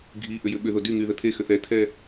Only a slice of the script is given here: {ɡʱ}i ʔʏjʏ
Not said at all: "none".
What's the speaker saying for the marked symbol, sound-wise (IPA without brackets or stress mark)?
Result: ɡʱ